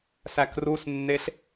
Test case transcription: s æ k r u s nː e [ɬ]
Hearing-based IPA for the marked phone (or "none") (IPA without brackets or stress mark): ɬ